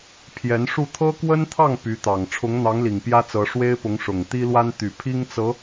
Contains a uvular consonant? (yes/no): no